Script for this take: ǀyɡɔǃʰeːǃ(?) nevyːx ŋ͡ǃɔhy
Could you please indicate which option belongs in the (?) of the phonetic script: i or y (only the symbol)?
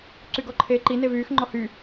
i